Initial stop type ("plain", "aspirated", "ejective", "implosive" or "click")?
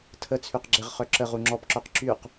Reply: aspirated